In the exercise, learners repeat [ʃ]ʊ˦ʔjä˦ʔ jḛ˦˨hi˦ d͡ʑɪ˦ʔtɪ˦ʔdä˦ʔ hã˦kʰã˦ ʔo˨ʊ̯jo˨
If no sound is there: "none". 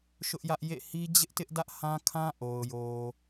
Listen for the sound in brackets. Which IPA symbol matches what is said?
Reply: ʃ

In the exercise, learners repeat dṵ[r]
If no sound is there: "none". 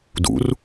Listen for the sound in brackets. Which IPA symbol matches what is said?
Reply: r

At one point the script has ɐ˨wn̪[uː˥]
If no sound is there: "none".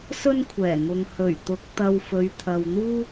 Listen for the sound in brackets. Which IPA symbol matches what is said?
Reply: uː˥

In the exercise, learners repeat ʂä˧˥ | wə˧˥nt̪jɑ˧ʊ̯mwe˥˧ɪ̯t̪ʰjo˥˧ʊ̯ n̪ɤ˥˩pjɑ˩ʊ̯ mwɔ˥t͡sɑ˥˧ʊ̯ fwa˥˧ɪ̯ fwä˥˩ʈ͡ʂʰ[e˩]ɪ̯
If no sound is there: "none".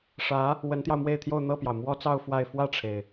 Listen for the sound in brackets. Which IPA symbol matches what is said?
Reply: e˩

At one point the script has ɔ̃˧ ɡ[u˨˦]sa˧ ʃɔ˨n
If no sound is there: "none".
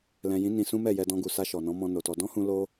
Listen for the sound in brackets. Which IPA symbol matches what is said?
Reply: u˨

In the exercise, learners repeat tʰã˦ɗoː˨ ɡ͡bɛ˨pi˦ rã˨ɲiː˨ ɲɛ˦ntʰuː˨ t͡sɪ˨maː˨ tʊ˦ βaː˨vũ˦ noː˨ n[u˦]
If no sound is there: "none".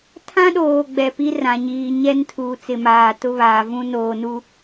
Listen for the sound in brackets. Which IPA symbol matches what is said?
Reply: u˦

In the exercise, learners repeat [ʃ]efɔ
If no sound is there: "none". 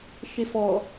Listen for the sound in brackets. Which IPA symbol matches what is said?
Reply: ʃ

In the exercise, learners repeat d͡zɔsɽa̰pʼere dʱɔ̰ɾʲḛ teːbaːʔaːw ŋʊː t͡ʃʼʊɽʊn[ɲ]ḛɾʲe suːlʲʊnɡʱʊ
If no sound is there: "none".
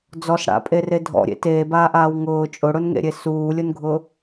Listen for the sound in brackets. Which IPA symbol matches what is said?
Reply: ŋ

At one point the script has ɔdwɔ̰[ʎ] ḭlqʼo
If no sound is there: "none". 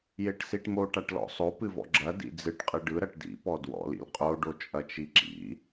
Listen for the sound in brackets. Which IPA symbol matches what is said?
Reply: l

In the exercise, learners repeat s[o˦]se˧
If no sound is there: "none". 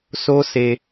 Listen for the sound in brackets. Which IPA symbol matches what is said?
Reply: o˦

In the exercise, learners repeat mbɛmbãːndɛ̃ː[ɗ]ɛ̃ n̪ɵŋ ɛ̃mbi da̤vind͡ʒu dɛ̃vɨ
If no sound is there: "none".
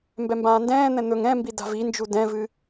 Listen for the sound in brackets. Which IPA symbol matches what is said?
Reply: n̪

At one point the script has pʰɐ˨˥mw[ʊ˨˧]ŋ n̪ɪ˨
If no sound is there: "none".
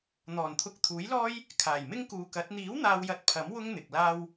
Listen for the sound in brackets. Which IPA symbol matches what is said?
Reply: ʊ˥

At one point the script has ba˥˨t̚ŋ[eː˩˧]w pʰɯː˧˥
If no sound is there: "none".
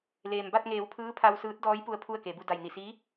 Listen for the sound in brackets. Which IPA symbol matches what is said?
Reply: eː˩˧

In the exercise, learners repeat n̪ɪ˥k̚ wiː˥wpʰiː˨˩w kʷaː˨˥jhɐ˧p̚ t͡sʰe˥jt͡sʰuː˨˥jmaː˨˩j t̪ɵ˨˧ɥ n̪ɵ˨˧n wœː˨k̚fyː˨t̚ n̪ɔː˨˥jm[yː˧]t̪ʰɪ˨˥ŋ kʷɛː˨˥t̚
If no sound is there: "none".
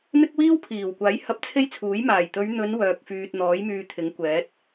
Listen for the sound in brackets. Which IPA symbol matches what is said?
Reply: yː˧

